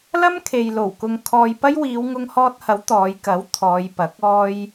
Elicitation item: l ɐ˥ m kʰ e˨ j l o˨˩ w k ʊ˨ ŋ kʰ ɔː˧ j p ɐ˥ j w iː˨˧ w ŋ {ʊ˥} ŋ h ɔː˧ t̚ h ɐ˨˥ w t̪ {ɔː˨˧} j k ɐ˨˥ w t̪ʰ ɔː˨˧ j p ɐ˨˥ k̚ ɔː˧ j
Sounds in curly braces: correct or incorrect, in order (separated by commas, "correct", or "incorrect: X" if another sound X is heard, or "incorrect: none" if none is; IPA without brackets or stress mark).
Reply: incorrect: ʊ˧, correct